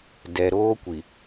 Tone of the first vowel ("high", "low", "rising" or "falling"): low